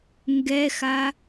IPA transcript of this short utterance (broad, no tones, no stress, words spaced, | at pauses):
ŋɡɛxa